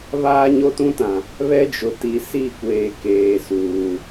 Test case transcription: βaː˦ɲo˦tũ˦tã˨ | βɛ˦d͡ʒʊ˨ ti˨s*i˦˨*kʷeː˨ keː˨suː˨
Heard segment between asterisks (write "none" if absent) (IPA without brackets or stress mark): i˦˨